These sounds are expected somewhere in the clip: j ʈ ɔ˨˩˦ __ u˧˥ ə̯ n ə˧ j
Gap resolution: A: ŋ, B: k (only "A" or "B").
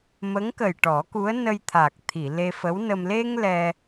B